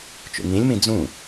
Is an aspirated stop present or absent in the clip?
absent